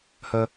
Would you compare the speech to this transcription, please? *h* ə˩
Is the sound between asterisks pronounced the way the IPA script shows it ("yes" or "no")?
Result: yes